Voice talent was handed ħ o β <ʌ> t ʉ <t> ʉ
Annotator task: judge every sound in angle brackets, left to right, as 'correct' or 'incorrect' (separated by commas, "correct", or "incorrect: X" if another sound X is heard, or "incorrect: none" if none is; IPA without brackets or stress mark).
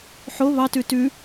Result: incorrect: ɑ, correct